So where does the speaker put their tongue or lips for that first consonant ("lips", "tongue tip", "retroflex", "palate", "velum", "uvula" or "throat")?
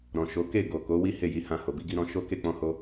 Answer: tongue tip